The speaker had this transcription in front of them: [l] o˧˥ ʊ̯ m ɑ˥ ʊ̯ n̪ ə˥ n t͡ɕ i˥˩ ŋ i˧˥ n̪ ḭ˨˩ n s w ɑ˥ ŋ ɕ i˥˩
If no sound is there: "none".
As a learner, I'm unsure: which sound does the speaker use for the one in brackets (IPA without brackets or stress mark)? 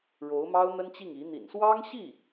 ɻ